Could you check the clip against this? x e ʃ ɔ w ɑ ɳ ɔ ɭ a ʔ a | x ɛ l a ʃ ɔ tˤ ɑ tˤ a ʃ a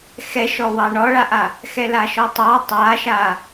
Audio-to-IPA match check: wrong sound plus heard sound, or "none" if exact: e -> ɛ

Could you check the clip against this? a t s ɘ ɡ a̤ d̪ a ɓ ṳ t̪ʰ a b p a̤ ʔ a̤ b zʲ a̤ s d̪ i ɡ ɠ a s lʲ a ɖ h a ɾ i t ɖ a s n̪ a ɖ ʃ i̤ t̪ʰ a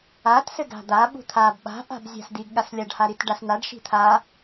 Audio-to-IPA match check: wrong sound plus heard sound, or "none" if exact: p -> ɓ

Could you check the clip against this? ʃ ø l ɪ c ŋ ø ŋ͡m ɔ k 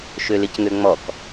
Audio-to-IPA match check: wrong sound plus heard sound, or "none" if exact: none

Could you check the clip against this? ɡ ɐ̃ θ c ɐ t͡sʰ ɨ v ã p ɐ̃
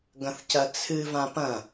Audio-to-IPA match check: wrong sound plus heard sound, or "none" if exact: none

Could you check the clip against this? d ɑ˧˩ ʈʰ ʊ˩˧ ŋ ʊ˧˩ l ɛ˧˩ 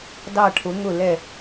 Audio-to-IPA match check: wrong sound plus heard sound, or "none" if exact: none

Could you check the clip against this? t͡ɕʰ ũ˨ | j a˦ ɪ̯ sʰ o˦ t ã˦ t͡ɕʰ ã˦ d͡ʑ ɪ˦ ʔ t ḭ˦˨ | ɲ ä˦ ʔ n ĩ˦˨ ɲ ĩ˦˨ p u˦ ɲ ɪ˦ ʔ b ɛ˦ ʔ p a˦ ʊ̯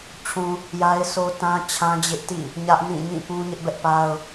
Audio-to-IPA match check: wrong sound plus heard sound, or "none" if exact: u˦ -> ũ˦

